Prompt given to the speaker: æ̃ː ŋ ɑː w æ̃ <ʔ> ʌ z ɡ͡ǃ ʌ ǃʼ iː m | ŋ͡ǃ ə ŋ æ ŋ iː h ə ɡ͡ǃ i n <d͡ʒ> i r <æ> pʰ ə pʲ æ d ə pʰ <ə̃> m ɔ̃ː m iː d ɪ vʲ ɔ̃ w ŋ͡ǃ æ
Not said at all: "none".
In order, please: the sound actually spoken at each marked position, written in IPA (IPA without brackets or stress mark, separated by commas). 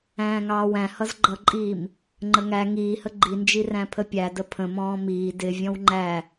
h, d͡ʒ, æ̃, ə̃